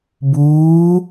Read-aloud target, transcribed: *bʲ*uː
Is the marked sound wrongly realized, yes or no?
yes